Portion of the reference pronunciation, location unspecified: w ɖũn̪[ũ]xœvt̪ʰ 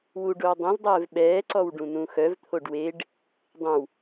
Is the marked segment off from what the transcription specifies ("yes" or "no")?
no